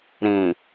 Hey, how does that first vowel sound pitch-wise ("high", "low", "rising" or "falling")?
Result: low